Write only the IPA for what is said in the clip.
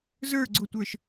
z ə˞ ɡ͡ǀ ʊ tʷ ə˞ ʃ

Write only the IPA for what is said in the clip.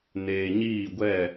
n eː˨ ɲ iː˦˨ ɡʷ ɛ˦˨

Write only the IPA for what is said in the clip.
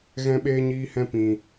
ɣ ɛ̃˧ ɓ eː˧ ɲ iː˦ h ɛ̃˦ p ĩ˨

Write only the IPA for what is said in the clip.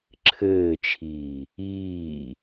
ǁʰ ɘː t͡ʃʰ iː | iː

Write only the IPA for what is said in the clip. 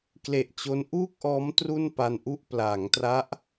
k l e˨˩ ʔ t͡ɕ o˦˥ n ʔ uː˥˩ k̚ ʔ ɔː˦˥ m t r u˥˩ n p a˧ n ʔ u˥˩ ʔ p l aː˩˦ ŋ t r a˦˥ ʔ

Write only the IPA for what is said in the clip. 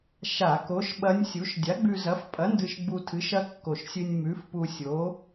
ʃ a˧˩˧ k o˨˥ ʃ ɓ ɐ˦˥ nʲ sʲ u˨˥ ʃ dʲ a˨˥ ɡ͡b ʉ˧ z ɐ˨˥ f pʼ ɐ˨˥ n d ɨ˧ ʃ ɡ͡b u˧ tʰ ɨ˨˥ ʃ ɐ˦˥ kː o˨˩ ʃ sʲ ɨ˧ nʲ m ʉ˨˥ f p u˧ sʲ o˨˥

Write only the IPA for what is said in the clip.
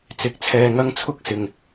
t͡s ɪ˨˥ k̚ t͡sʰ ɛː˧ ŋ ɐ˥ ŋ t͡sʰ ʊ˥ k̚ s ɪ˨ ŋ

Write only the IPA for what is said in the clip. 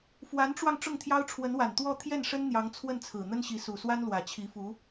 f w a˧˥ n ʈ͡ʂ w ɑ˧ ŋ ʈ͡ʂ ʊ˥˩ ŋ t̪ʰ j ɑ˥ ʊ̯ ʈ͡ʂʰ w ə˧˥ n w a˨˩ n t̪ w ɔ˥˧ t̪ʰ j ɛ˥˩ n ʂ ə˥ n n̪ j ɑ˧˥ ŋ t͡sʰ w ə˥˩ n t͡sʰ ɹ̩˨˩ n̪ ə˥ n ɕ i˧˥ s u˨˩ s w a˥ n l w ä˨˩ t͡ɕʰ i˧˥ f u˧˥

